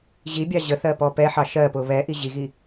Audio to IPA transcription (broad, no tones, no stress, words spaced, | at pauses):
ʑibʲɑ ʑəθɜ pɔpɛħɑ ʃɜpʊ βɛʔi ʑiɣi